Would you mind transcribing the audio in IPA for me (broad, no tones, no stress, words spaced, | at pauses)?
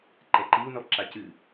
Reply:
ǃɛǃiu̯nɔ ǁacɨ